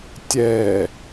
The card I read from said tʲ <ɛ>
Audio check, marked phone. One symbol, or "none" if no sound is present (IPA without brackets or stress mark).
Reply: ɛ